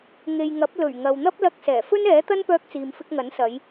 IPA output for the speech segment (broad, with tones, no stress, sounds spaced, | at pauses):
ŋ e˨ j ŋ ɐ˨˥ p̚ l ɵ˨˩ ɥ ŋ ɐ˨ w n̪ ɐ˥ p̚ l ɐ˧ k̚ s ɛː˨˩ f ɵ˥ n ɛː˨˥ t̪ ɐ˥ n p œː˧ k̚ t͡s iː˨ m f ɪ˧ k̚ ŋ ɐ˨˥ n s ɐ˨˧ j